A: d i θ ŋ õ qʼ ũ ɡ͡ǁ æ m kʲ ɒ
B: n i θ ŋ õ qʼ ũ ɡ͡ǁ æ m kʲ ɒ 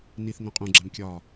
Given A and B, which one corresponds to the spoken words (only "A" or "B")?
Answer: B